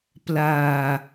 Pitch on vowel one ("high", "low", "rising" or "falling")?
low